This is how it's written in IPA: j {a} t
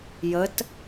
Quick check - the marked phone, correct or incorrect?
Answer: incorrect